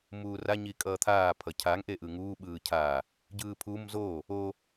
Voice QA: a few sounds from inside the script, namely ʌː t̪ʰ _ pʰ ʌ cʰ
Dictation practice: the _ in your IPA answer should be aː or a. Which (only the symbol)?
aː